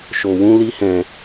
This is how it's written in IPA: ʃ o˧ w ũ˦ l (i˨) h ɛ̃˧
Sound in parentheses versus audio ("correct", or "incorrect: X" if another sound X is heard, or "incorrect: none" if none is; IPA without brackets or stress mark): incorrect: i˦